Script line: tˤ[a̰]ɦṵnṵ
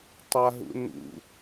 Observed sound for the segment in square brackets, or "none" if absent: a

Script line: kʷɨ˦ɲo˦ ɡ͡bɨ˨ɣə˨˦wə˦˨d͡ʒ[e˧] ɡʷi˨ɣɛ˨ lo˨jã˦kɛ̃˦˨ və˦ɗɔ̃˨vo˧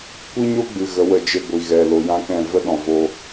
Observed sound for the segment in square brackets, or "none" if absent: e˧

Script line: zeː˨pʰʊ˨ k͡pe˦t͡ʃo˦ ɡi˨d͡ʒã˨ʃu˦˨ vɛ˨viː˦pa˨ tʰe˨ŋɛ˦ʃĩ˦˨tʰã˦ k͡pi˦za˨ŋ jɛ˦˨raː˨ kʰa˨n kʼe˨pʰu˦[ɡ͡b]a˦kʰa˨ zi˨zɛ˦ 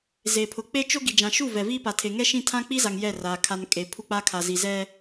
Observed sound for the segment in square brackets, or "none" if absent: k͡p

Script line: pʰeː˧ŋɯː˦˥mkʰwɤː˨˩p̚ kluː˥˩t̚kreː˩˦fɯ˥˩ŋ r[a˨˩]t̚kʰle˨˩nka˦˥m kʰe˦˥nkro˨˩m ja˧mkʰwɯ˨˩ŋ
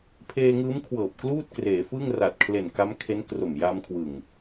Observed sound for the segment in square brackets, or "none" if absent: a˨˩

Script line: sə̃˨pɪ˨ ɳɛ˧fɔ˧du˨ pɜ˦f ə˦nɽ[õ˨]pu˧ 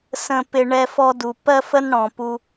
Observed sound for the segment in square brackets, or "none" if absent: ɔ̃˨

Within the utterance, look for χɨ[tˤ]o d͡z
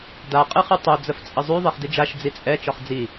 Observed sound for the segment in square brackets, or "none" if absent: tˤ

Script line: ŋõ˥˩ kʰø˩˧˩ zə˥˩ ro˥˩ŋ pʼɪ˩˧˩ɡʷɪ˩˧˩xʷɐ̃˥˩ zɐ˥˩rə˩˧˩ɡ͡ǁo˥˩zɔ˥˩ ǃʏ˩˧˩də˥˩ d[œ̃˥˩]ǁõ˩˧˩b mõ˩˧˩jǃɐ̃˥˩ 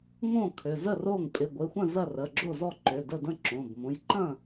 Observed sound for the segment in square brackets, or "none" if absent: ə̃˥˩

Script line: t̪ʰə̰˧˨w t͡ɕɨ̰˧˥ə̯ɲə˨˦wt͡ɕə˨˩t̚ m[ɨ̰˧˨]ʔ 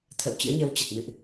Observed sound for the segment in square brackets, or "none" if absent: ɨ̰˧˨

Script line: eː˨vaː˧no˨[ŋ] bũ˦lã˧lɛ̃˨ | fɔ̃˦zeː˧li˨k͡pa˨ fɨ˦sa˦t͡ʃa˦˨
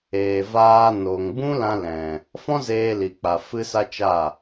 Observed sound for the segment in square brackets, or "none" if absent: ŋ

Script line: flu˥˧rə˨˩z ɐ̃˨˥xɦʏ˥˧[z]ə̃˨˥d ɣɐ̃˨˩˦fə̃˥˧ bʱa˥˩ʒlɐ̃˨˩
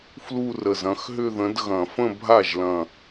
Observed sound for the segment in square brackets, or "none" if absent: ð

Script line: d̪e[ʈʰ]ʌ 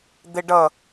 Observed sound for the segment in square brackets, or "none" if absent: ɖ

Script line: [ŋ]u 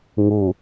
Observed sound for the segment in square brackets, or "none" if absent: ŋ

